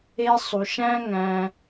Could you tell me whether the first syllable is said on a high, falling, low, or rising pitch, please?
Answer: high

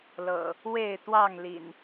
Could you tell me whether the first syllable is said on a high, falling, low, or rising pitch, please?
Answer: low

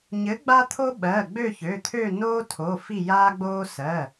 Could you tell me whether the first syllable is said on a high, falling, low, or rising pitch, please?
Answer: rising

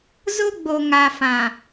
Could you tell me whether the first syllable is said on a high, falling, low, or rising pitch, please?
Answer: high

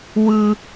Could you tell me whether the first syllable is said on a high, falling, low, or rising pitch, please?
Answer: high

